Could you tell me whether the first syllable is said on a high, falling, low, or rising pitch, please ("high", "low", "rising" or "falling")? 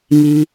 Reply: low